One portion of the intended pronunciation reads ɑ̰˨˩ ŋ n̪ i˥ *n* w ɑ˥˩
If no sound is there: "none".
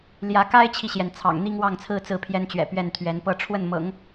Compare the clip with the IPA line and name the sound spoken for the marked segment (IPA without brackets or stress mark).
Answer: ŋ